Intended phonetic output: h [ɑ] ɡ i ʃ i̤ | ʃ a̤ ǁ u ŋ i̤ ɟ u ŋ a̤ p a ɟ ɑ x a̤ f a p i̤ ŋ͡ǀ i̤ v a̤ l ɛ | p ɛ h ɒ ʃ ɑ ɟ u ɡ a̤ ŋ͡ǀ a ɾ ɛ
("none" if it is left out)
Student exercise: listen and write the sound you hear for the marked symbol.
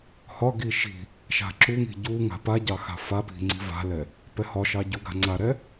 ɒ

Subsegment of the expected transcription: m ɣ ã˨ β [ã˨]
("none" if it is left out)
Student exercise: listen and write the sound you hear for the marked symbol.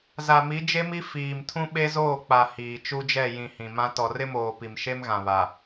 a˨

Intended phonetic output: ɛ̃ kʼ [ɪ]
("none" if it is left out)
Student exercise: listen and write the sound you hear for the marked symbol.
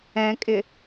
ɪ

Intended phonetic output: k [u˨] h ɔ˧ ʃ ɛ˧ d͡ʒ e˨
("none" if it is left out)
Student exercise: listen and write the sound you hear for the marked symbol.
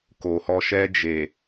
o˨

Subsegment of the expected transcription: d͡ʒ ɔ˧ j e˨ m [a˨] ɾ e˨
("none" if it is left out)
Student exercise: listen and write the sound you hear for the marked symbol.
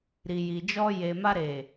a˧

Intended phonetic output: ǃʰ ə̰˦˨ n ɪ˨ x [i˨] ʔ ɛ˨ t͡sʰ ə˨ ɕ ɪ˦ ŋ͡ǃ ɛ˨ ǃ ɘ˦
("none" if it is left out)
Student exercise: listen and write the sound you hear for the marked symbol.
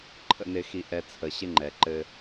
i˨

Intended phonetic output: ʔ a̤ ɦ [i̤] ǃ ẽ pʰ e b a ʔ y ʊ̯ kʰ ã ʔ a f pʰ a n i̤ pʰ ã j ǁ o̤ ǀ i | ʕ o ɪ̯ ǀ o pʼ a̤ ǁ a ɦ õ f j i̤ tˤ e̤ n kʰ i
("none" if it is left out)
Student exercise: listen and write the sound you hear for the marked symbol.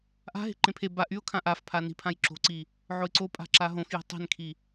e̤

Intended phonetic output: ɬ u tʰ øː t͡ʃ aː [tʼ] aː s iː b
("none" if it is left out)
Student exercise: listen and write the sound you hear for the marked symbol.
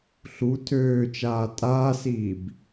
tʼ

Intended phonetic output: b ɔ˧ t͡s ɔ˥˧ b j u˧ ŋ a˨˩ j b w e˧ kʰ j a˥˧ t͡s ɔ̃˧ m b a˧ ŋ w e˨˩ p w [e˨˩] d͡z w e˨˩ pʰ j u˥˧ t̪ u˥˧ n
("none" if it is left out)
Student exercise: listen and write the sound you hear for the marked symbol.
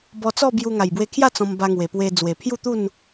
e˧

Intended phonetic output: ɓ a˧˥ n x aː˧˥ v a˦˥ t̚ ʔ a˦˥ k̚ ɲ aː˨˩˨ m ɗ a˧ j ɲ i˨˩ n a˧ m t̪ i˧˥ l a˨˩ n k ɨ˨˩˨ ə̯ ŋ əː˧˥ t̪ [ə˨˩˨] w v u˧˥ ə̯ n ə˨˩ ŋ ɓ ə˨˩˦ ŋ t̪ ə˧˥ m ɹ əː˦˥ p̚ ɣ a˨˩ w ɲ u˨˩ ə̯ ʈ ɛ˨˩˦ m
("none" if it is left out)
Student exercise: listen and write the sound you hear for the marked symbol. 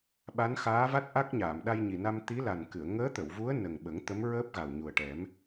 ə˨˩˨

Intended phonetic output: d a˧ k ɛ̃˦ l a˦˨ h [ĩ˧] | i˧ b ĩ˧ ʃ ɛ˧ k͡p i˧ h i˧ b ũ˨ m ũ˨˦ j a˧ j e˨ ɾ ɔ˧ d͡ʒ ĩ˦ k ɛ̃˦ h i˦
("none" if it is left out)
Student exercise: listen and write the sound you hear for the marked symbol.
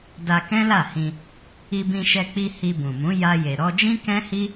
ĩ˧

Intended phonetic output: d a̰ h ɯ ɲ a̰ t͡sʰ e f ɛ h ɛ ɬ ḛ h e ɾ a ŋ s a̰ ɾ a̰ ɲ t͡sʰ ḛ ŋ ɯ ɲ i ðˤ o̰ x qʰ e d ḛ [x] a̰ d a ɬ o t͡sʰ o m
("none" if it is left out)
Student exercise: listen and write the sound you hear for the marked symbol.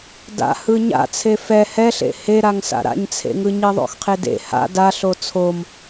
h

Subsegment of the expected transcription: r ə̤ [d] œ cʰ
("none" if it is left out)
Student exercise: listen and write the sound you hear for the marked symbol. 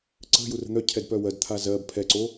n̪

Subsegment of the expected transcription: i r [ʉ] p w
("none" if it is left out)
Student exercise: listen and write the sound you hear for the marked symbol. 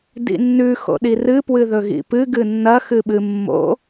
ɨ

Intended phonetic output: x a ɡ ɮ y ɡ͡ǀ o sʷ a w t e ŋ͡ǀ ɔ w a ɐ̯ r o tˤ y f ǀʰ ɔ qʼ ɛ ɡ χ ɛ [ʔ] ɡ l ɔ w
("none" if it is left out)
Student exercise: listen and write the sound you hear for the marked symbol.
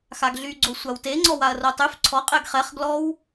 χ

